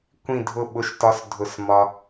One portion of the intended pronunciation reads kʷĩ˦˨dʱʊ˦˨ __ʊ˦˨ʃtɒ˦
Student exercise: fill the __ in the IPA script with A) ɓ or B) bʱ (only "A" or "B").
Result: A